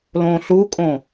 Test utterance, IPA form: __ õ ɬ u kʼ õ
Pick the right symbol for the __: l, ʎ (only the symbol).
l